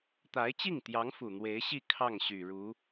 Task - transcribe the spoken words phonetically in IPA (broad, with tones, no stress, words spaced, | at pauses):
t̪a˧˥ɪ̯t͡ɕi˥˩ŋt̪jɑ˧˥ŋ fu˨˩n̪we˧˥ɪ̯ɕi˥˧ kʰɑ˥˩ŋɕy˨˩ ɻu˧˥